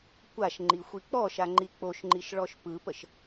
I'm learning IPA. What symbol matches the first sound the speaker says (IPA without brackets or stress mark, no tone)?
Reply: kʷ